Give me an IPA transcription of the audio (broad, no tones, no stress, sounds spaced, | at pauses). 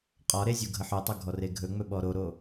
qʼ ɒ ɾ e zʲ u ɡʱ ə ħ ɵ tˤ ɵ ɡʱ ɔ r e ɡʱ ɵ ŋ͡m ɵ ɓ ɔ ɾ o ɾ o